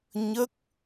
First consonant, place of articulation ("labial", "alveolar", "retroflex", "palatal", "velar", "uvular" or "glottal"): palatal